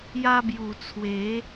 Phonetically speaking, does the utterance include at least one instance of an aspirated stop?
yes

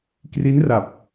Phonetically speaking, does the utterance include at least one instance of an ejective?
no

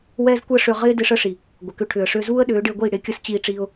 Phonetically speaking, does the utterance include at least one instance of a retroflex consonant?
yes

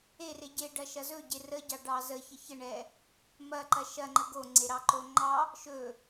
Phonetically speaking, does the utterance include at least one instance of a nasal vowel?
no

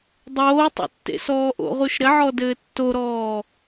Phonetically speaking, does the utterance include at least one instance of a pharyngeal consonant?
yes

